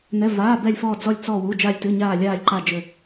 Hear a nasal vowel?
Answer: no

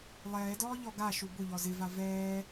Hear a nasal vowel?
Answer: no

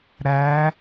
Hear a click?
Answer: no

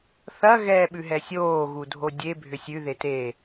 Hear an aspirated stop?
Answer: no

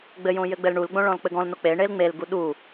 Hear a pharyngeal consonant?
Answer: no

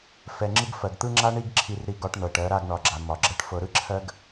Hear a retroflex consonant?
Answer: yes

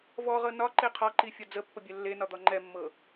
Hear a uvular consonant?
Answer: yes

